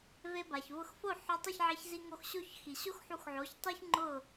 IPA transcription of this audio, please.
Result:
ve˧ba˩çvʊ˧xfo˥˩ ħʊ˧ tˤi˥˩çʕe˧ç zi˧ŋo˧xɕo˥˩çxi˩ ɕo˥x ħu˧xʕo˩˥çtˤi˥ç ŋ͡ǃʊ˥˩

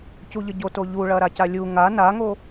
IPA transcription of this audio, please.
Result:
cuʎəɟo toʎuɭɐ ɾacalʲu ŋa naŋo

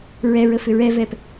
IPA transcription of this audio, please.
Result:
ɹɛɹə fʏɹɛvɛp

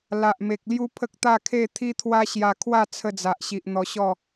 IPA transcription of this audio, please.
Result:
la˨ʔme˨k̚ lju˦pʰə˦k̚t̪a˥˧kʰe˥˧ t̪ʰi˦t̪ʰwa˦ɕja˧kʰwa˥˧ t͡sʰə˧d͡za˨ʔɕi˨ʔ n̪ɔ˧ɕɔ˥˧

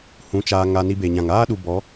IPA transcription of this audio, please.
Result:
hũ˨˦ t͡ʃaː˧ŋa˧ ni˧be˨ɲã˨ŋ aː˦ɗu˨ bɔ˨˦

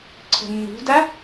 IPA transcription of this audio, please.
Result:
ǀʰə̤nːṳda

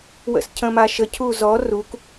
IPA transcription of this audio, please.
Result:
wə̰scʰə̃maʃə cʰuzɔ ruk

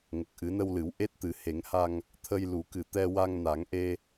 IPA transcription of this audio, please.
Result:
ŋə˨˩k̚ʔɨ˨˩˦nə˧wlɨ˨˩˦w ʔe˦˥t̚t̪ɨ˨˩˦he˨˩˦ŋha˧ŋ | t̪ʰə˧jlu˨˩˦kɨ˨˩ t̪ɛ˧wa˧ŋna˨˩˦ŋʔe˧

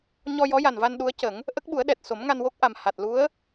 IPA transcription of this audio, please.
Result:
ɲɔ˧jɔ˧˥ja˨˩nva˧n ɗu˧˥ə̯cə˨˩˦ŋ | ʔə˦˥k̚ɓu˨˩˦ə̯ɗɛ˨˩t̚ so˨˩˦mŋa˧nwo˦˥k̚ʔa˨˩m ha˨˩t̚lu˧˥ə̯

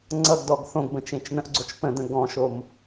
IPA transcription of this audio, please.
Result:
ŋ͡ǀʌɡdɔɡ θõɡbə̃t͡ʃẽt͡ʃ n̪ə̃ʔɡ͡ǀot͡ʃ pə̃d̪ə̃ ɡɔ̃ʃom

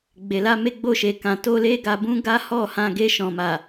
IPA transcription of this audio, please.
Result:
ɡ͡be˨la˧me˧ɡ͡bo˧ ʃe˨kã˨to˧ le˦ɡa˧bũ˦ ɡa˦hɔ˦˨hã˧ ɡe˧ʃɔ̃˨ma˨

